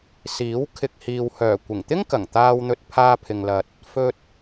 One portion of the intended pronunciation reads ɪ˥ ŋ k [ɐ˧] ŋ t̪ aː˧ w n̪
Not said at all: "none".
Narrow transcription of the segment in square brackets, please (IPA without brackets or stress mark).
ɐ˨˩